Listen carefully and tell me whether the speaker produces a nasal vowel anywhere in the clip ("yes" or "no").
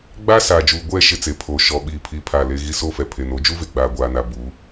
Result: no